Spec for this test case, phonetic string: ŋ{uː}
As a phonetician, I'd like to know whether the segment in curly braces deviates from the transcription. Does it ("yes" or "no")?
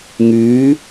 yes